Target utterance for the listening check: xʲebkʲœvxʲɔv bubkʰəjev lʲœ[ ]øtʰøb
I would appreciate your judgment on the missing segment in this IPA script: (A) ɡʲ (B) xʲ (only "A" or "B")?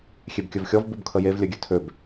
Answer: A